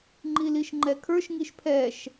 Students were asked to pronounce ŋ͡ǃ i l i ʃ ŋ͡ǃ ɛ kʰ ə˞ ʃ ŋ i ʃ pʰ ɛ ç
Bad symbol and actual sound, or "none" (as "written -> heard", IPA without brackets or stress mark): ç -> ʃ